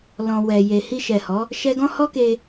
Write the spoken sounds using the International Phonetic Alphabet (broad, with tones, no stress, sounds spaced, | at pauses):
l ɔ̃˨ w ɛ˨ j e˨ h i˧ ʃ ɛ˨ h ɔ˨˦ | ʃ ɛ˧ ɡ ɔ̃˦ h ɔ˦ k e˧